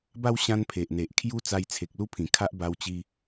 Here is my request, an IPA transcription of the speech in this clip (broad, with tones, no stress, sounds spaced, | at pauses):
b a˦ w ɕ ã˦ n pʰ e˨ ʔ n̪ e˨ ʔ kʰ j u˦ t͡s a˧ j t͡sʰ e˨ k̚ l u˦ pʰ ĩ˨˩ kʰ a˦ ʔ b a˧ w t͡ɕ i˧